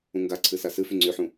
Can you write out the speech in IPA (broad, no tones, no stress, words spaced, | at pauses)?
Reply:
ũŋɡaǀʰɨ sasɨfy ŋ͡ǀyħũ